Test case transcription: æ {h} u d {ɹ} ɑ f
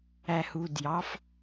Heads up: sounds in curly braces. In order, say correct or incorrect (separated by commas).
correct, incorrect